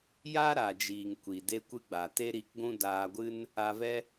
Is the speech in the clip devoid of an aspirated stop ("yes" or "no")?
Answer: yes